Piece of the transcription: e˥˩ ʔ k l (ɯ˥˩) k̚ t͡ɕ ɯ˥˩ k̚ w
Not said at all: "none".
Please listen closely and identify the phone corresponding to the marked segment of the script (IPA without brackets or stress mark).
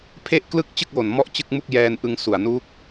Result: ɯ˥˩